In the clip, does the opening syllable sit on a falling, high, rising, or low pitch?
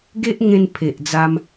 high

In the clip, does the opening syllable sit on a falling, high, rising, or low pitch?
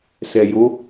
low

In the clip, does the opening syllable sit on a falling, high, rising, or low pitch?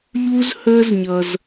high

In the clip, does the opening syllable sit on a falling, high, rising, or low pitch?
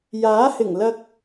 rising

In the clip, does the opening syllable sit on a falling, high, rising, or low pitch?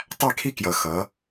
falling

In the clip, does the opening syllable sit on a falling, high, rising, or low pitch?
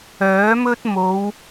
rising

